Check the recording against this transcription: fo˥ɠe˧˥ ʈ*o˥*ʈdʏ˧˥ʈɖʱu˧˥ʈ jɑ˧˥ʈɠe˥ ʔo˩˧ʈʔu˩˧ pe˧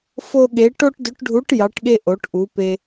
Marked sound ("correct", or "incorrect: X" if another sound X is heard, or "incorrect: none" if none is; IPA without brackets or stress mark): correct